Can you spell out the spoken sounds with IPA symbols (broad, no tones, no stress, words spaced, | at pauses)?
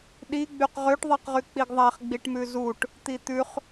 ɗiɡ͡byq ʁøʈðˤɛqʁyk͡piɡ ðˤæχɡ͡biʈmʉ zuʈ | t̪it̪ʉχ